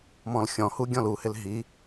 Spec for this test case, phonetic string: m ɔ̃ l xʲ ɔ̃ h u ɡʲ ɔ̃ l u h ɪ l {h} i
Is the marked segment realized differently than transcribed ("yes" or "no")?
yes